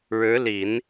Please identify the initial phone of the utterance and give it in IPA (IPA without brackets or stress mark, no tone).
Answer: ɻ